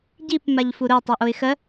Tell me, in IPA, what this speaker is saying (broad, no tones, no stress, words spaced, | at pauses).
ɟip maʎfuɾʊɪ̯ tˤøʔoɪ̯xɜ